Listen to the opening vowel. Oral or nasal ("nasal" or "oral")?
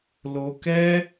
oral